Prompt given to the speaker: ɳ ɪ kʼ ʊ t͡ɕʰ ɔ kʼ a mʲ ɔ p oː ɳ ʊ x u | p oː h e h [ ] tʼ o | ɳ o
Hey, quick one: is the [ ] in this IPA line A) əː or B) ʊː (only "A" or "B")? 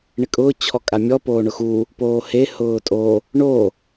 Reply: B